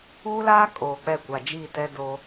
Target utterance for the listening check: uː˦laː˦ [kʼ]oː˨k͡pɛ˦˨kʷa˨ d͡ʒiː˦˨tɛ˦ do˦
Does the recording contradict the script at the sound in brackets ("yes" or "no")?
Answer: no